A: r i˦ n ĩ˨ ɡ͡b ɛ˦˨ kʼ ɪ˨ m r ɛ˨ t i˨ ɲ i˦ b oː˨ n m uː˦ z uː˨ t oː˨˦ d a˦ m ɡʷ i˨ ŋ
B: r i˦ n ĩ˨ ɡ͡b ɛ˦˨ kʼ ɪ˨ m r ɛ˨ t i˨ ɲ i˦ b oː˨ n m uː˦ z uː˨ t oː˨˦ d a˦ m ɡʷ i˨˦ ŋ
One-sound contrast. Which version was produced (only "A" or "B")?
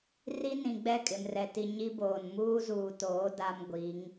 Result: B